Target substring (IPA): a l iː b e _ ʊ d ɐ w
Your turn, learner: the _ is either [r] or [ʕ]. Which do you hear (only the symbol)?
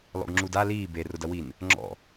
r